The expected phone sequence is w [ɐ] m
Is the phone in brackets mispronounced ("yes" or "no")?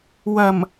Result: no